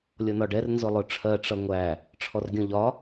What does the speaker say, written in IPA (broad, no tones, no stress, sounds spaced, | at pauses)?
lʲ ɔ n ɒ ɖ ɛ r n z ʊ lˠ ʊ ʈ͡ʂʰ ɜ ʈ͡ʂ ʌ ŋʷ æ | ʈ͡ʂʰ ɔ r ɡʲ ɔ̃ ʎ ɒ